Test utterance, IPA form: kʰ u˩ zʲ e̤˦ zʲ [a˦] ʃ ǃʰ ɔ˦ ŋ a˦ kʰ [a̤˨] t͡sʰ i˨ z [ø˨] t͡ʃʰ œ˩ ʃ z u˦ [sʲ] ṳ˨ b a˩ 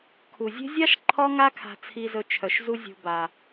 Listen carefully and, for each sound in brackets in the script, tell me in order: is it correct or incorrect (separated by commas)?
incorrect, correct, incorrect, incorrect